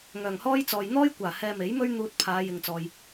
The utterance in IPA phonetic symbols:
ŋ œː˨˩ ŋ h ɔː˥ j t͡s ɔː˨ j n̪ ɔː˥ j kʷ aː˨˩ h ɛː˧ m e˨˥ j m ɵ˥ ɥ n̪ uː˧ t̚ pʰ aː˨˧ j ɪ˨ ŋ t͡s ɔː˨ j

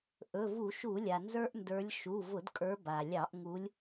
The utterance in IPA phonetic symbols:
ʔ ɵ˩˧˩ v u˧˩˧ ʃ u˧˩˧ lʲ a˩ n z ə˞˦ ʔ n d ə˞˨˦ lʲ ʃ u˩˧˩ v ʊ˧˩˧ d kʼ ə˞˨˦ b a˩ lʲ ɑ˧˩˧ ʔ ŋ u˨˦ lʲ

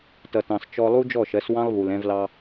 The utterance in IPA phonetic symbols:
t ʌ˨ t ɑ̃˨ s t͡ʃ ɔ˧ lˠ u˦ d͡ʒ ɔ˦˨ ʃ ɜ˨˦ s w ɑ̃˦ lˠ β u˨ l ɛ̃˧ v l ɑ˧

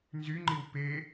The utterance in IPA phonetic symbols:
n z y ŋ͡ǃ i w p e

